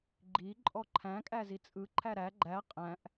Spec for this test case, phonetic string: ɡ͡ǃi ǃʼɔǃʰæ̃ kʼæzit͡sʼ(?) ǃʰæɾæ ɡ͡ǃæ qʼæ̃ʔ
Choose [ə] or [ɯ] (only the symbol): ɯ